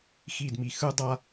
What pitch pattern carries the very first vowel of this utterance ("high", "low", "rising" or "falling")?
falling